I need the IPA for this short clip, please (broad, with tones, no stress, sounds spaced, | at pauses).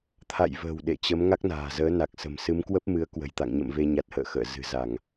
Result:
t̪ʰ a̰˧˨ j v ə̤ː˨˩ w ɗ ḛ˧˨ t͡ɕ ə˨˦ m ŋ a˦˥ k̚ n a̤ː˨˩ z əː˨˦ n a˨˩ k̚ s ə̤˨˩ m s ɨ˨˦ m k w ə˦˥ p̚ m ɨ˨˦ ə̯ k w ə̤˨˩ j t̪ a̰˧˨ ŋ ɲ ə̰˧˨ m v e˧ ɲ a˨˩ t̚ h ə̰ː˧˨ x ə̰ː˧˨ z ɨ̤˨˩ z a˧˩˨ ŋ